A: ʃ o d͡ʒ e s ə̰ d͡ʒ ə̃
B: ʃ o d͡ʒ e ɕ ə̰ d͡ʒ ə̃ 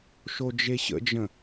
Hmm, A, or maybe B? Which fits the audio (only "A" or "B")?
B